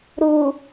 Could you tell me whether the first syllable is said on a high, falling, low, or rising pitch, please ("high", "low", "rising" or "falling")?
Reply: low